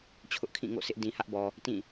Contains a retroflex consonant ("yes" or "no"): no